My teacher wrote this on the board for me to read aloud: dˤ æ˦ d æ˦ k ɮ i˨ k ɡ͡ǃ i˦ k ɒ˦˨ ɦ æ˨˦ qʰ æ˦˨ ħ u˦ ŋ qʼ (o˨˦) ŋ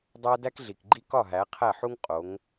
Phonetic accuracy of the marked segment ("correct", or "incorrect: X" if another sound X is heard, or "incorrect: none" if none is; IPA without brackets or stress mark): correct